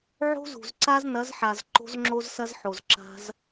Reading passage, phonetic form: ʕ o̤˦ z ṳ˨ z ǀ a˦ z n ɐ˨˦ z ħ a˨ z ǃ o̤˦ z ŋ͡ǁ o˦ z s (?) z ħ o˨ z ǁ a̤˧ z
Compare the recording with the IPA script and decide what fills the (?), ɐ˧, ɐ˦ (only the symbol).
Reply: ɐ˦